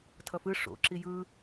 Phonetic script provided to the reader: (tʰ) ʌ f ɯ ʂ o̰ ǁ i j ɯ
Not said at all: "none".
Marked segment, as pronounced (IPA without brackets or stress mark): tʰ